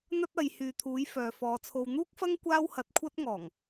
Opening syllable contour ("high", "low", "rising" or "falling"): high